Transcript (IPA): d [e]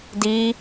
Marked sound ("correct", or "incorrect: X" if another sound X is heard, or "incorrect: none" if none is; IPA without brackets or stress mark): incorrect: i